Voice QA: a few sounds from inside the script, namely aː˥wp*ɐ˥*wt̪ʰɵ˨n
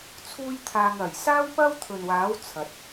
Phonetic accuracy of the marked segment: correct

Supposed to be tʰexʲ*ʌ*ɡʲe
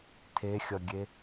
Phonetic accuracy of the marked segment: correct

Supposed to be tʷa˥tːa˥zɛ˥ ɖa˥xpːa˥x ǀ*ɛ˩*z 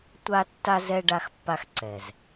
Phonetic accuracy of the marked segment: correct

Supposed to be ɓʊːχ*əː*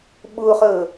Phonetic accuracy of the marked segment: correct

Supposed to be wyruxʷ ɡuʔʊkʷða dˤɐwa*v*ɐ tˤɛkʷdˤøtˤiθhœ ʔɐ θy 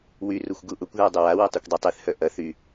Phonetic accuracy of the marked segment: incorrect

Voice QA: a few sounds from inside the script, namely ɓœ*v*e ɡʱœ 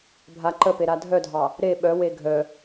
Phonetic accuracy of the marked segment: incorrect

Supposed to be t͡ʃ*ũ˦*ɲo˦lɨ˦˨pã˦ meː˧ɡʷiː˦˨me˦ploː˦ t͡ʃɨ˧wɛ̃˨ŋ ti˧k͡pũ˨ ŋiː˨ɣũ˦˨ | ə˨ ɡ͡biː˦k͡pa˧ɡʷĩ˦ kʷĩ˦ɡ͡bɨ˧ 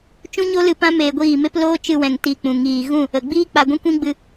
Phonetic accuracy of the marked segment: correct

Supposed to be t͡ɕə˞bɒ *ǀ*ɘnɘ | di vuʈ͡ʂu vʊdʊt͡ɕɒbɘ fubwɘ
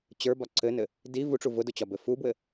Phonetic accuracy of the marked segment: correct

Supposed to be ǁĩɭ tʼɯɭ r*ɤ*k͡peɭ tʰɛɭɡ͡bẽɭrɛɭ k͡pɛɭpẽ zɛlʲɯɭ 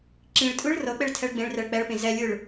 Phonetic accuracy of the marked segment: correct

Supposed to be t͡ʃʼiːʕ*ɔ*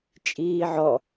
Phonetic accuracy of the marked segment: correct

